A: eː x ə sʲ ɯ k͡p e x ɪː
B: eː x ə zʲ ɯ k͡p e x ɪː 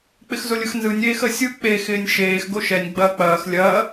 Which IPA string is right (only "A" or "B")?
A